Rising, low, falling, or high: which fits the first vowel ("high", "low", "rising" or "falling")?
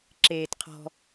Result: low